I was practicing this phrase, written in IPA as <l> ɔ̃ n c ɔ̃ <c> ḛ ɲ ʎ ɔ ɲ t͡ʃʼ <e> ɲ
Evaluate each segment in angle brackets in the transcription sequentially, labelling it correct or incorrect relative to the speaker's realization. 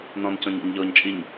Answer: incorrect: n, incorrect: ɲ, incorrect: i

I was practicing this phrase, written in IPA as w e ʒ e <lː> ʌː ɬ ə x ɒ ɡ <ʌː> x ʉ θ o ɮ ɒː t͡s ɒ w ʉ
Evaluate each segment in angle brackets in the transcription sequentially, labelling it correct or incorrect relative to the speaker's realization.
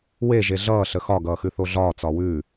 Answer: incorrect: ɮ, correct

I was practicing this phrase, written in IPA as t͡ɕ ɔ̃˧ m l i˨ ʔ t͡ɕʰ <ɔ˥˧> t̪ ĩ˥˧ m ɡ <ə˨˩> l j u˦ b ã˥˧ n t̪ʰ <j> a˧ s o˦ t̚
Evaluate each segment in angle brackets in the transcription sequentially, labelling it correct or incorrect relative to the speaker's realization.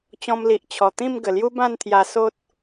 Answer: incorrect: ɔ˨˩, correct, correct

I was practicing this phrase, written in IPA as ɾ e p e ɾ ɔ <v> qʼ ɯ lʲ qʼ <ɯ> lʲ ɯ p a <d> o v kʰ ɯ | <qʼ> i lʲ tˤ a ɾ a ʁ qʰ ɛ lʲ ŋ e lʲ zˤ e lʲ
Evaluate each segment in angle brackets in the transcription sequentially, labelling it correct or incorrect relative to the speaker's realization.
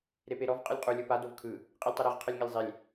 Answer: correct, incorrect: u, correct, correct

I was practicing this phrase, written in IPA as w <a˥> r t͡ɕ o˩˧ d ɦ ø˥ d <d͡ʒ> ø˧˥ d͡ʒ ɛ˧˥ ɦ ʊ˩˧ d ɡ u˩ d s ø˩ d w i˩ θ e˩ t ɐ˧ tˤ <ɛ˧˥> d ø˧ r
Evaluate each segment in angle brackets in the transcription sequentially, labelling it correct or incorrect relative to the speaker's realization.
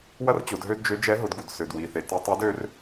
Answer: incorrect: ɐ˥, correct, incorrect: e˧˥

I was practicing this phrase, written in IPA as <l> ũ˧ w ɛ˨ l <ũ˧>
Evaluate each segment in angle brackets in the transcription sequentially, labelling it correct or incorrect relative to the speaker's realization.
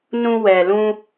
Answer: incorrect: n, correct

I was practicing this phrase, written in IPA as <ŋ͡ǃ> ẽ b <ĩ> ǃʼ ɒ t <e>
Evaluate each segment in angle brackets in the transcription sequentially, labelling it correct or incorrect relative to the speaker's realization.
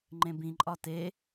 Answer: correct, correct, correct

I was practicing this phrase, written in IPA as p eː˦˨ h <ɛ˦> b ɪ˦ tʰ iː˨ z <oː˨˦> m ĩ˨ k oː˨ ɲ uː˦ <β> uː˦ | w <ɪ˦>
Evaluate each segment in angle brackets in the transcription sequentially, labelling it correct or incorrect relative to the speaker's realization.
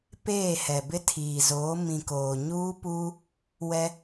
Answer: incorrect: ɛ˨, correct, incorrect: p, incorrect: ɛ˦

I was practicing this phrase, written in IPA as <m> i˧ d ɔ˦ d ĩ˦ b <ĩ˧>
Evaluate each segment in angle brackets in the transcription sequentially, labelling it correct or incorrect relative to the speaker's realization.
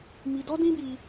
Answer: correct, incorrect: i˧

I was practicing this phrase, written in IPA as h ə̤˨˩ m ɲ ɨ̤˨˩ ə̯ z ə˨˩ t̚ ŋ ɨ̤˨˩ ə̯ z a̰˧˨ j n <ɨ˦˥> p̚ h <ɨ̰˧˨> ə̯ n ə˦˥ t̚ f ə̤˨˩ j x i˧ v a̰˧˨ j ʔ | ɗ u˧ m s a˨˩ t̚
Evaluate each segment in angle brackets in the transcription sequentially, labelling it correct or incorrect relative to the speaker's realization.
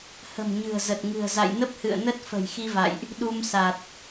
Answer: incorrect: ə˦˥, correct

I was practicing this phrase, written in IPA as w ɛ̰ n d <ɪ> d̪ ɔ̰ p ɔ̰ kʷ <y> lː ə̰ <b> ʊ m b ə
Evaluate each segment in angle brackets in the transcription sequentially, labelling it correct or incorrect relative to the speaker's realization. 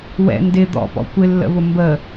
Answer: correct, incorrect: ɪ, incorrect: β

